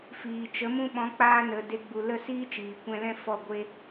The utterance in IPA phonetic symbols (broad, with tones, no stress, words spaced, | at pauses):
fiː˨t͡ʃə˨˦ mũ˧ɓɔ̃˨˦k͡paː˧nə˨ de˧ ɡ͡bu˨ lə˦˨siː˦t͡ʃiː˨ kʷɛ̃˧lɛ̃˦fɔ˦˨ɡʷe˦